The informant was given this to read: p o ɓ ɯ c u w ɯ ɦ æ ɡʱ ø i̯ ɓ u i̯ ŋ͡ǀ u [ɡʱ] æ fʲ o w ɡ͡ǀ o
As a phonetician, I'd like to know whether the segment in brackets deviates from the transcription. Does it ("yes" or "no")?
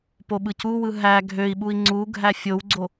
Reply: no